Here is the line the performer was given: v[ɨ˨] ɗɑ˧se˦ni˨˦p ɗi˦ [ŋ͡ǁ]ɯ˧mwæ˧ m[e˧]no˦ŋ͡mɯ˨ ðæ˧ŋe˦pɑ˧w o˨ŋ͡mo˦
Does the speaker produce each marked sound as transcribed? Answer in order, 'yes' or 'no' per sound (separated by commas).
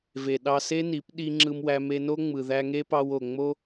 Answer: no, yes, yes